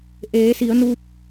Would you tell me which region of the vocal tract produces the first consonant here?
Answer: throat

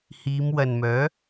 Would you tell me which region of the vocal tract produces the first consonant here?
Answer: throat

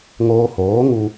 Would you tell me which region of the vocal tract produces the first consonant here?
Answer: velum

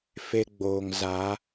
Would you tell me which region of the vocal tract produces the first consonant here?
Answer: lips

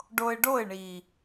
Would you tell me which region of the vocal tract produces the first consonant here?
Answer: retroflex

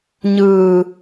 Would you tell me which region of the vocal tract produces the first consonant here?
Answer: palate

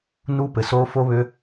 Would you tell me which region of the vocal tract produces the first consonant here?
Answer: tongue tip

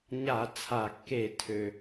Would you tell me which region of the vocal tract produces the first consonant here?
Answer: palate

